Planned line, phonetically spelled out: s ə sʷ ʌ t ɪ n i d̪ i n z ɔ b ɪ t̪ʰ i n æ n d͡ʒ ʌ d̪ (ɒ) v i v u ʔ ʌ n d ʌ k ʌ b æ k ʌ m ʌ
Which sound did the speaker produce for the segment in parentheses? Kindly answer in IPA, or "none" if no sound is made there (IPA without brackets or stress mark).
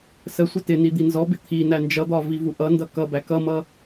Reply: ɒ